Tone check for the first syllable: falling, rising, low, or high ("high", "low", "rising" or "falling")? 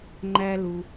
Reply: high